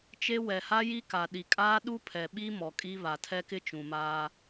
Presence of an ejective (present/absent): present